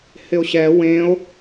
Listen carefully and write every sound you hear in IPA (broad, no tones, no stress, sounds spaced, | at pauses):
h ɪ o̯ ɕ ɛ w ẽ o̯